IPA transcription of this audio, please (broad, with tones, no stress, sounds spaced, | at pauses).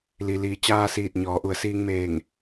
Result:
l i˩ l iː˩˧ t͡ɕ aː˧ s iː˧˩ t̚ ɲ ɔː˩˧ ʔ u˩˧ ə̯ s iː˧ ŋ m eː˧˩ ŋ